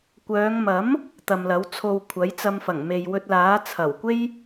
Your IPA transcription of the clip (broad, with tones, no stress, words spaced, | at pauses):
kʷœː˨˧ŋmɐ˨˥m | t̪ɐ˨mlɐ˨˥wt͡sʰo˧wkʷʰɐ˨˥j t͡sɐ˧mfɐ˨˩ŋ me˨jwɵ˧t̚laː˨˥ t͡sʰɐ˨˩wkʷe˥j